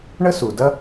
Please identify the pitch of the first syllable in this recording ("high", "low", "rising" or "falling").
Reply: high